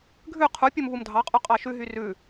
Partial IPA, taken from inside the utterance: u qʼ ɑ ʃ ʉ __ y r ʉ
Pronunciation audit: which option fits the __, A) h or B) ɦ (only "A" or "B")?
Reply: B